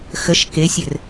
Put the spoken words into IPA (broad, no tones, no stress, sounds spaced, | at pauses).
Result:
x ə ʃ k e sʲ ɘ r